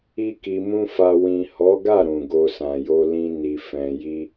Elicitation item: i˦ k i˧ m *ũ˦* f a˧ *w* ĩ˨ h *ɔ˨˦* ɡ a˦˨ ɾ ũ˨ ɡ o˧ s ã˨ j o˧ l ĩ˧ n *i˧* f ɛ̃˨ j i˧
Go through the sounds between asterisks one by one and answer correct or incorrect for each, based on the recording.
correct, correct, correct, incorrect: i˨

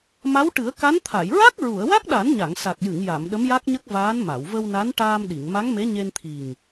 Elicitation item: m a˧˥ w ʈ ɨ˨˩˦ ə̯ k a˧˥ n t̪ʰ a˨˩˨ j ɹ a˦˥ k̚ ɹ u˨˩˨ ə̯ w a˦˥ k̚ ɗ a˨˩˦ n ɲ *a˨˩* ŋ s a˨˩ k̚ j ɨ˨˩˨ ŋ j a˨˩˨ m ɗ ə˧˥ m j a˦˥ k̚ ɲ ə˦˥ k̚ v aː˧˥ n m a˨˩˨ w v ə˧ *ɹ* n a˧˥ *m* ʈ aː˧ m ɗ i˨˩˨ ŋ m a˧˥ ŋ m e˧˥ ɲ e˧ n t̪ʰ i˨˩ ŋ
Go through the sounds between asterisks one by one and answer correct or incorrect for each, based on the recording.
incorrect: a˨˩˨, incorrect: w, incorrect: n

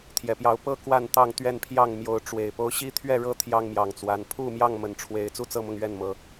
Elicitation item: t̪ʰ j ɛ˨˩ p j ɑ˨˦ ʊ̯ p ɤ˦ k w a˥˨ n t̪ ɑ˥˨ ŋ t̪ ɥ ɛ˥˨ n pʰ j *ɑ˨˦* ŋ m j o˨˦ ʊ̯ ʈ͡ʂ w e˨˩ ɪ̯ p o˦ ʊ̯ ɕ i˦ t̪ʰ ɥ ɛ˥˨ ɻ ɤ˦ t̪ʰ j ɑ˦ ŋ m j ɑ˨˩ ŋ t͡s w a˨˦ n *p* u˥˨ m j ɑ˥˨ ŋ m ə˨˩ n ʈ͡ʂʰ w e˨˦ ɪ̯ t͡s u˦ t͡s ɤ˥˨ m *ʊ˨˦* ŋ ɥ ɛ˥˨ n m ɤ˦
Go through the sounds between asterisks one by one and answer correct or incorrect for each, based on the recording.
incorrect: ɑ˥˨, incorrect: pʰ, incorrect: ʊ˥˨

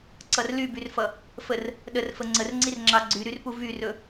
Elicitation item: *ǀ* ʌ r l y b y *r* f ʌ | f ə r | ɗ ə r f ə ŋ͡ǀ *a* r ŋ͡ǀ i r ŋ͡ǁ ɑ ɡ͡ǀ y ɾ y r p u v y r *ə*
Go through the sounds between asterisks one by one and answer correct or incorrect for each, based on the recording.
correct, correct, incorrect: ə, incorrect: ɵ

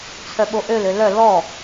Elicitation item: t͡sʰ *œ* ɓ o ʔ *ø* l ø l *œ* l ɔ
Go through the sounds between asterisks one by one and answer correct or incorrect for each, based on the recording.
correct, correct, correct

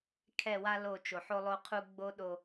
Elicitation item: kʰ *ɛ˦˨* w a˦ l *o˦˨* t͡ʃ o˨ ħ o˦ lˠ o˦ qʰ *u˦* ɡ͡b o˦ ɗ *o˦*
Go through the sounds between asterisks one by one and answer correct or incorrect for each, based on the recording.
correct, correct, correct, correct

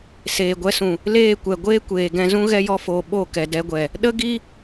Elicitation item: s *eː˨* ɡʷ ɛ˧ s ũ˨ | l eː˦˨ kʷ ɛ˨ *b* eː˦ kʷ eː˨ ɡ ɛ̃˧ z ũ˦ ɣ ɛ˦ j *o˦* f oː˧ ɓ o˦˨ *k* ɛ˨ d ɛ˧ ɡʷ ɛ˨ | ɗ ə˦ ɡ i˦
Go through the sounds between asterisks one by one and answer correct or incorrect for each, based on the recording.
correct, incorrect: ɡʷ, incorrect: ɔ˦, correct

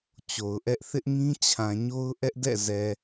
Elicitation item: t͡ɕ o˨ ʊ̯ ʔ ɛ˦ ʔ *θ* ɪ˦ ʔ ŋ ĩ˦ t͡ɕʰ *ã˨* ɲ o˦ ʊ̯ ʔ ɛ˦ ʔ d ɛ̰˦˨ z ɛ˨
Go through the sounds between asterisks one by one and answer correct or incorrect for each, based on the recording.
correct, correct

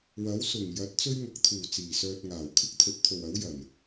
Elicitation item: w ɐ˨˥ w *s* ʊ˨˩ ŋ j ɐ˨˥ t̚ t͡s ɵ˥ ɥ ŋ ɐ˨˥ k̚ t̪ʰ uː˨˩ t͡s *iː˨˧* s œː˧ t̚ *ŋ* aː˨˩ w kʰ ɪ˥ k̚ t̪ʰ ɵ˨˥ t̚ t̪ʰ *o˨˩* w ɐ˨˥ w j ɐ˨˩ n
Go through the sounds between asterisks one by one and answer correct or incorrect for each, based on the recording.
correct, incorrect: iː˨˩, correct, incorrect: o˨

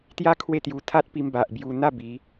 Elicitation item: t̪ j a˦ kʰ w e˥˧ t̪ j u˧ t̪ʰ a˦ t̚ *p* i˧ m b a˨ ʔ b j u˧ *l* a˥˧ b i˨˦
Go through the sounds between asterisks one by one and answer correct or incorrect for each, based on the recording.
correct, incorrect: n̪

